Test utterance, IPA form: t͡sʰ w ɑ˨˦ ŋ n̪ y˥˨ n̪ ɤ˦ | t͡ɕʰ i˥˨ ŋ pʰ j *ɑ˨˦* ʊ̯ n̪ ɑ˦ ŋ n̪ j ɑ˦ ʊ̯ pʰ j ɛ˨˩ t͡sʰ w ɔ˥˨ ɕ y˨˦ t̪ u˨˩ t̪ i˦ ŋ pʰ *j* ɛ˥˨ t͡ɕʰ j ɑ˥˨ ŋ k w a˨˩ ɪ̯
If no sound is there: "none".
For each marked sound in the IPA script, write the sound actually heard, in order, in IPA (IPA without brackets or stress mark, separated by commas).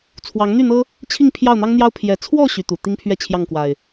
ɑ˥˨, ɥ